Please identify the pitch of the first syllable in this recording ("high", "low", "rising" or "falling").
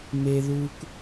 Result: high